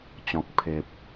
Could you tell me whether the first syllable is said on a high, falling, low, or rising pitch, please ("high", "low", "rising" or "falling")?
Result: low